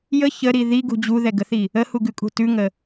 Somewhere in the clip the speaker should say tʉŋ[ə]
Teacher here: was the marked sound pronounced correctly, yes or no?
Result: yes